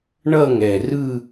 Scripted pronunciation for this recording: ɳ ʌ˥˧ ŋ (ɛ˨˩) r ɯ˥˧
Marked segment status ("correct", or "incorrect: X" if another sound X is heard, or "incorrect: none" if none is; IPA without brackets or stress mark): correct